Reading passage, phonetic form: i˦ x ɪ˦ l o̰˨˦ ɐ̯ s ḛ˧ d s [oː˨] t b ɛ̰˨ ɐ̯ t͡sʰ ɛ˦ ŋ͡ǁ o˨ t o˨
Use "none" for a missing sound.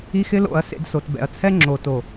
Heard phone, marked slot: o˨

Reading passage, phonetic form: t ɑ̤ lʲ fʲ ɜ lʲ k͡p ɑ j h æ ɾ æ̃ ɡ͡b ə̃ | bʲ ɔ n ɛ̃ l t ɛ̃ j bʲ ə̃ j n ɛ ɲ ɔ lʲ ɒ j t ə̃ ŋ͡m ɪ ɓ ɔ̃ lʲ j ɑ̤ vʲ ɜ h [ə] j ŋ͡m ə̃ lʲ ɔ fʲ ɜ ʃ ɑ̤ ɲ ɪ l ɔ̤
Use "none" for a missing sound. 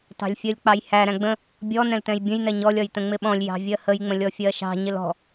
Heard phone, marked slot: ə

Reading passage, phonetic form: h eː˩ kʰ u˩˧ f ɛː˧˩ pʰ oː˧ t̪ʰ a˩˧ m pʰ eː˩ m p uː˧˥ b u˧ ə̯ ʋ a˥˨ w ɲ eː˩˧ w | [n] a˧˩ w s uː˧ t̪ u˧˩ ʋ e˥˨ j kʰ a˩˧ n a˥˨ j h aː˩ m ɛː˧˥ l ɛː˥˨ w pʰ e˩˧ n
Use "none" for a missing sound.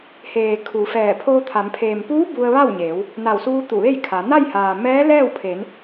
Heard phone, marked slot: n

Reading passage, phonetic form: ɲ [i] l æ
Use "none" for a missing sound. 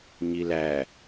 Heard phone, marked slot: i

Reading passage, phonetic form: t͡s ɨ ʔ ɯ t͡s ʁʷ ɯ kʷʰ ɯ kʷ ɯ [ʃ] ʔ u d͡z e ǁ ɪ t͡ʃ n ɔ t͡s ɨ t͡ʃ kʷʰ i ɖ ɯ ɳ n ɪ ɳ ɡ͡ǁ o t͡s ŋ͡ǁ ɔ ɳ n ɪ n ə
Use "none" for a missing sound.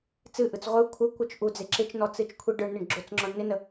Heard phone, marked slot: t͡ʃ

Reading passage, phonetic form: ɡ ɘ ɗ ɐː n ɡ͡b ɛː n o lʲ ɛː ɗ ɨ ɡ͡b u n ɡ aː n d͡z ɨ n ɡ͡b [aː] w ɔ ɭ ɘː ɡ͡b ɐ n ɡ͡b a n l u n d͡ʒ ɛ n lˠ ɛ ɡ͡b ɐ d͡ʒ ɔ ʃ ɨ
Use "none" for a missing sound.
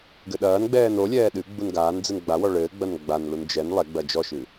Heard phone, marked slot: a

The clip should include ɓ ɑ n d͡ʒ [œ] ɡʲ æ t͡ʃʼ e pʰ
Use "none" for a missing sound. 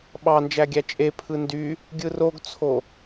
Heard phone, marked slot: æ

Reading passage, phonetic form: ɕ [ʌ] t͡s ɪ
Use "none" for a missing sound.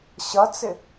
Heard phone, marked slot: ʌ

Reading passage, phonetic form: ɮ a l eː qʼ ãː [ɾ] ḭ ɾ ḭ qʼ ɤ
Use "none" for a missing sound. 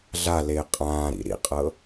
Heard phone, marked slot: ɾ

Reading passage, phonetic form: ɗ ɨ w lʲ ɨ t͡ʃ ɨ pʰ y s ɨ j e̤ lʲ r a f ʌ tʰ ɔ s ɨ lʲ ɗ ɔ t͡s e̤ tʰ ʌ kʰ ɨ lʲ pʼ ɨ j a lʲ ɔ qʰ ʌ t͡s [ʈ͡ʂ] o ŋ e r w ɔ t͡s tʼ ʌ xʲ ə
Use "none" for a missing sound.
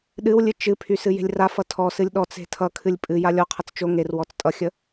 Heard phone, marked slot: t͡ʃ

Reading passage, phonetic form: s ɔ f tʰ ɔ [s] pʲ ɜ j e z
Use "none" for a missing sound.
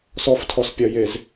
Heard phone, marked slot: s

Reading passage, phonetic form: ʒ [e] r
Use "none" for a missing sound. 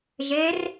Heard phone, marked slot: e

